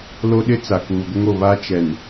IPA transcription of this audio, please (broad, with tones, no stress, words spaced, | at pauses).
lo˦ɗɪ˦ t͡sa˨kuː˨ɡʷɪ˦ŋo˨ βa˦t͡ʃɛ˨n